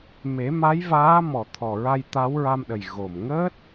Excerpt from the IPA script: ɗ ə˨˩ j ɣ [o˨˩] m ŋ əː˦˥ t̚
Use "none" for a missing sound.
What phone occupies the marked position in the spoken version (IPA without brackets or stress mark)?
o˨˩